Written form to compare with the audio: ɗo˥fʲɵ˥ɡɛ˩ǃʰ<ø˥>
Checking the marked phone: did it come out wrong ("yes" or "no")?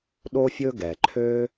no